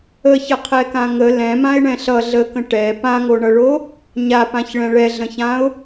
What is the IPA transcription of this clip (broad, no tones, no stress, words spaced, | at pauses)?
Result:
əçəqʰɛkã ŋə lɛ̃mãɪ̯ɳɛ̃ ɬʌ ɮəkə̃ ʈɛ pãŋoɳʌɭo | ɲapãçɭɛ̃ ɭɛɮə̃çãʊ̯